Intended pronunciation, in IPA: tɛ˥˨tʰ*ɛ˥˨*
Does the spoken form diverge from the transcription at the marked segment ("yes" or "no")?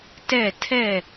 no